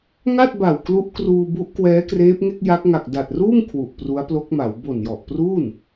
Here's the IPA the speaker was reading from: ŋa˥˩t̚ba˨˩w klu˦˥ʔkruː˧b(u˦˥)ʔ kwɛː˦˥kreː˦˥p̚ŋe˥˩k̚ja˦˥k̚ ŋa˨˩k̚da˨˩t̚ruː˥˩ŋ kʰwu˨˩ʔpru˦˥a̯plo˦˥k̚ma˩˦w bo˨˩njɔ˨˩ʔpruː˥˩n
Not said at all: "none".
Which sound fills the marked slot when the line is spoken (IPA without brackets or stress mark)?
u˦˥